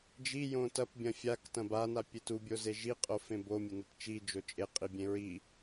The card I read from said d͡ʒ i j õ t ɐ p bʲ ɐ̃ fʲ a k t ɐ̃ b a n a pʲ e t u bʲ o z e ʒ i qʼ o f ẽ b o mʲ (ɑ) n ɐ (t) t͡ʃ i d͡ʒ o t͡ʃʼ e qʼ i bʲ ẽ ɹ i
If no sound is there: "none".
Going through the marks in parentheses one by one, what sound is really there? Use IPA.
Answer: ɐ, t

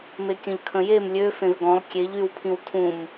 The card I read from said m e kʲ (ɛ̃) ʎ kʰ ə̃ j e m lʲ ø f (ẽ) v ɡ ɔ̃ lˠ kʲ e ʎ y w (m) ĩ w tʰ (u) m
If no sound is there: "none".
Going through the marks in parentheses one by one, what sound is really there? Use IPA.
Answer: ə̃, ẽ, pʰ, ũ

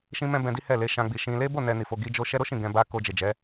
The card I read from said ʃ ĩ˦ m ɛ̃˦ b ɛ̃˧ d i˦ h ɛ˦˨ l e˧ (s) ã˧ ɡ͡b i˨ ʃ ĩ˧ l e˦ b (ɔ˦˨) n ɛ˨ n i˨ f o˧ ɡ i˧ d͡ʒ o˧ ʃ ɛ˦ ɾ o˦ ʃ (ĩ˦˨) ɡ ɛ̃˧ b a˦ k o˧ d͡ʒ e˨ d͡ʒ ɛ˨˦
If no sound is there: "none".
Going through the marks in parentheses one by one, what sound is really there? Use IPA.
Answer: ʃ, o˦˨, ĩ˦˨

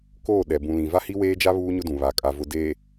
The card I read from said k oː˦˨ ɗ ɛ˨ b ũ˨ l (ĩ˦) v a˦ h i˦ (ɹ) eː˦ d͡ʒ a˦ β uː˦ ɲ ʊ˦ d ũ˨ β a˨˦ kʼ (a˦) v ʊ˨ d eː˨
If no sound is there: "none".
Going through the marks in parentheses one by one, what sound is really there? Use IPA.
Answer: ĩ˨, w, a˨

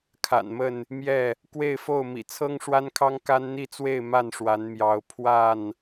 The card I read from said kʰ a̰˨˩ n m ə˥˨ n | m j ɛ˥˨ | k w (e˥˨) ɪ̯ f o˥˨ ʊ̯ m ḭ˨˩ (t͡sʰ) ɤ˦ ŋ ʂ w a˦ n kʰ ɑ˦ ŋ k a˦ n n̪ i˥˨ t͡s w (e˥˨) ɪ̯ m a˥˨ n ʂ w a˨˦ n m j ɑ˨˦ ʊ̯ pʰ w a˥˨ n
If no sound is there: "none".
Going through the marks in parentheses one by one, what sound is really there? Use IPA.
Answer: e˥˨, t͡sʰ, e˥˨

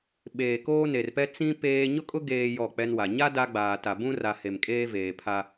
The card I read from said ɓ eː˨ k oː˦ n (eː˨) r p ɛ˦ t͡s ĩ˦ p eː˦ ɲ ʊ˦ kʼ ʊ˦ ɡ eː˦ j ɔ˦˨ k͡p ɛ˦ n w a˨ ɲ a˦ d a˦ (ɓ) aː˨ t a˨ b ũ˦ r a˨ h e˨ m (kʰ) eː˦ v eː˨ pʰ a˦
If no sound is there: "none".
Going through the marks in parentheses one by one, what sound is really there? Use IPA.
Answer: e˨, ɡ͡b, kʼ

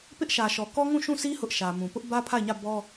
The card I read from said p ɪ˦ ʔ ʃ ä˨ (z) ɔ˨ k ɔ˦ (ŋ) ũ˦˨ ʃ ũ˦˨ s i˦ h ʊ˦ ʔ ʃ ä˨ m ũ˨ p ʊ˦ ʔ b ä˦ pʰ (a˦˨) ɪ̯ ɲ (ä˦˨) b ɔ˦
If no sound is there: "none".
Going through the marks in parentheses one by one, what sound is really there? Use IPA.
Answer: ʃ, ŋ, a˦˨, ä˦˨

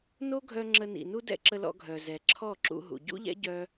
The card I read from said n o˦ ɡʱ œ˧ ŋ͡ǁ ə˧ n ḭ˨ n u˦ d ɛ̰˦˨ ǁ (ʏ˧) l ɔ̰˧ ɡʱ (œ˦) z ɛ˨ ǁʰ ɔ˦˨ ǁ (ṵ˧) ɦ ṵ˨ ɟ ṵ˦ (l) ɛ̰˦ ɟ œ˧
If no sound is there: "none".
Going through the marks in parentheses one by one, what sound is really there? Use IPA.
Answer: ə˧, œ˨, ṵ˧, ʎ

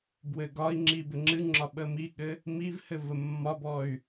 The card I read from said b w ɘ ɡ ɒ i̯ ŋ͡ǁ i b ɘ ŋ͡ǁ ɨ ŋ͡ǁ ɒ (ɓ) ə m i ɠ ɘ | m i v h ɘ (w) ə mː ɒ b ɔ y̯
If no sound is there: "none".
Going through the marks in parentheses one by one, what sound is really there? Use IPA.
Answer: ɓ, v

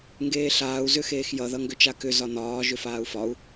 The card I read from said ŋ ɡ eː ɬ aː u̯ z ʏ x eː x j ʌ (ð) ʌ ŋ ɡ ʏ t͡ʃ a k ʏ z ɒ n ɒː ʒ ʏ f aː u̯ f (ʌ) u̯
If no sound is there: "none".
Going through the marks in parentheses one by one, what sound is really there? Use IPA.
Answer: ð, ɒ

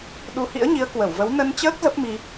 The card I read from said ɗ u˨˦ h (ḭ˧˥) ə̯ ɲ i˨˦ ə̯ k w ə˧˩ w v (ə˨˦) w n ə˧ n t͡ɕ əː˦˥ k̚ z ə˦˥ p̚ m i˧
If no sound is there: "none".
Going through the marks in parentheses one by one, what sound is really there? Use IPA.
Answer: ḭ˧˥, ə˨˦

